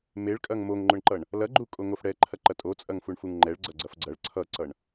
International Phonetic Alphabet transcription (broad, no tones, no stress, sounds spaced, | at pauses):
m e ɭ kʼ ɐ ŋ m o ŋ ŋ͡ǃ ʊ ɳ ǃ ʌ ɳ | l ɐ ɡ͡ǃ u kʼ o ŋ o f ɽ ɛ ǃʰ ɐ ǃ ɐ tʼ o t͡sʼ ɐ ŋ f u ɳ f u ŋ ŋ͡ǃ ɛ ɭ ɡ͡ǀ ɐ ɡ͡ǀ ɐ f ɡ͡ǀ ɐ ɭ ǀʰ ʌ ǀ ʌ ɳ